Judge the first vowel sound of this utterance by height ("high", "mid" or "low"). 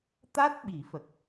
low